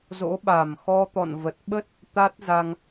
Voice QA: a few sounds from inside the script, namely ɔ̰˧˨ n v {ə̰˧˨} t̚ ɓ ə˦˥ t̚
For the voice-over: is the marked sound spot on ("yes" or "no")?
no